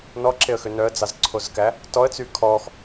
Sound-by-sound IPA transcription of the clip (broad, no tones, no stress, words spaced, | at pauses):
nɔǁeə̯xø nœə̯d͡zɑzǀʰozkæ | tɔə̯t͡sy kʰɔx